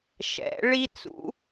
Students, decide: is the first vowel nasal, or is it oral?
oral